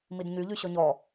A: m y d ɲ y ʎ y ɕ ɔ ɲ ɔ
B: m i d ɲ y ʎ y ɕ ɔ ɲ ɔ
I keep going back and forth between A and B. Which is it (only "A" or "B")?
B